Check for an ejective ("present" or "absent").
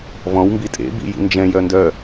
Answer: present